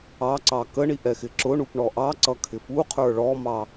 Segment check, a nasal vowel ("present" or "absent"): absent